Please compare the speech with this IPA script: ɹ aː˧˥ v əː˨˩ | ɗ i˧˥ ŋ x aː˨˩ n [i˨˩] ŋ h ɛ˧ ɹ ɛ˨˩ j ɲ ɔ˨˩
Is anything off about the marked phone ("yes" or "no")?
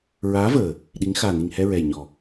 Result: no